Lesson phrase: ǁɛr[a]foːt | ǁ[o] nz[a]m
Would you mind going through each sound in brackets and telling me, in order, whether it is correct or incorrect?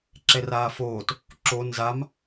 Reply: incorrect: aː, correct, correct

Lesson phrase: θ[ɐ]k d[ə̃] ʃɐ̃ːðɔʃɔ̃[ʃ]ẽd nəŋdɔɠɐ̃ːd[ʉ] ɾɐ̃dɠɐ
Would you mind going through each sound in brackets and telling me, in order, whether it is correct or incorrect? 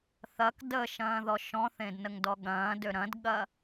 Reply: correct, incorrect: ə, incorrect: θ, incorrect: ø

